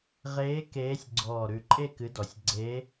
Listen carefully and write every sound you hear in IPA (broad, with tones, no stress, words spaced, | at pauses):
ʁeː˧˥ keː˧˥sʲ ɡ͡ǀɔː˨˩ɾʉ˨˩ǃʼe˥˧ kɨ˧˥dɔ˨˩sʲ ɡ͡ǀeː˧˥